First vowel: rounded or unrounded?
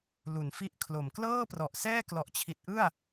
rounded